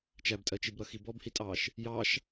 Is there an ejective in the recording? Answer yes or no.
yes